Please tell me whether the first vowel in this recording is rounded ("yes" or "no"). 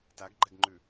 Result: no